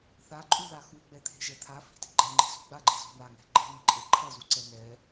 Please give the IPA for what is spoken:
θ a ǃʼ u ð a x u ɡ͡b ɛ t̪ʰ e̤ ʒ ɛ t̪ʰ a f i̤ t i̤ ɡ͡ǃ ɛ ŋ͡ǃ i̤ z ṳ ɡ͡b a ɡ͡ǃ i z ṳ n̪ a ŋ ɛ̤ ɡ͡ǃ e̤ m i ǃʼ e ǃʰ ʌ z u ǀ ɛ n ɛ

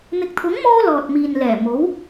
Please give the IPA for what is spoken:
n̪ ɪ˨ k̚ t̪ʰ ʊ˨˥ ŋ m ɔː˧ l ɔː˨ t̚ m iː˨ n l ɛː˨˩ m o˨˥ w

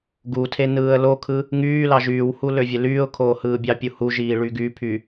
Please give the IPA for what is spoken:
ɡ u tʰ e n ɯː ə̯ l o kʰ ɯ | ŋ yː l ɑ ʒ yː w h u l ø vʲ e l yː ʊ̯ kʰ oː h ɯː bʲ ɑ pʲ u h u ʒ iː ɭ y ɡ y pʰ y

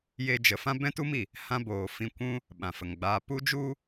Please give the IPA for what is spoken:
j e˦ d͡ʒ ə˨˦ f ã˦ b ɛ̃˦ t u˦ m i˨ | h ã˦ b oː˨ f ĩ˧ kʷ ũ˦ | ɓ ã˨ f ə˨ ŋ ɡ͡b aː˧ p u˦ d͡ʒ u˦

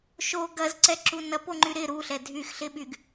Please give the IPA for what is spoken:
ʃ o ɡ ɐ z ǀ ɛ ǁ u n ɐ p o ŋ͡ǃ y ɾ ɪ ɾ u ɬ ɛ dʱ y x ɬ ɪ ɓ y ɡ

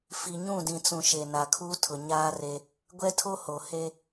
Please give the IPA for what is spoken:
f i˨ ɲ ũ˦˨ d ĩ˨ t͡s ũ˨ ʃ e˨ n a˨ kʰ uː˦ tʰ ʊ˨ ɲ aː˦ r e˦ | ɡʷ ɛ˦ tʰ o˦ h o˨ h e˦

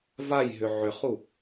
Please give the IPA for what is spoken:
v a j ɦ ʏ ʕ ʏ χ u

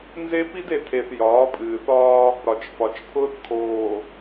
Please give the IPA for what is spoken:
n z e˦ p i˦ d e˨ tʰ e˨ θ j ɒː˨˦ pʼ ɨː˨ θ ɒː˦ | ɾ ɒ˨ t͡ʃ f ɒ˨ t͡ʃ pʰ ʊː˦ θ kʰ oː˨

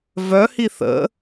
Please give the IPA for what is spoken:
v œ h i θ ə̰

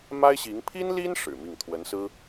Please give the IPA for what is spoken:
m a˥ ɪ̯ ɕ i˧˥ ŋ pʰ i˥ n l i˥ n ʂ ɻ̩˨˩ m i˥˩ ŋ t̪ʰ w ə˧˥ n s ɹ̩˥

